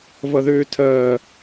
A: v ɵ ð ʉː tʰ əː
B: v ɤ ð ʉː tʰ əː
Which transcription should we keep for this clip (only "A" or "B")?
B